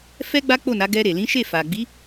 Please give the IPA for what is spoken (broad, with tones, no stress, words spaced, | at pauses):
fɛ˦ɡ͡ba˦ k͡po˦˨na˨˦ ɡɛ˧ɾe˨ lĩ˨˦ʃe˦˨fa˨ɡ͡bi˨˦